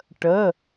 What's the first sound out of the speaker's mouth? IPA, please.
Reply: ʈ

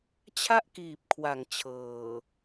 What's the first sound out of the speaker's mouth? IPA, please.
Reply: t͡ɕʰ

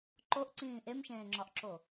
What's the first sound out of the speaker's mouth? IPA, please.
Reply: ǃ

